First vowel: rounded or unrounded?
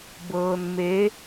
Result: unrounded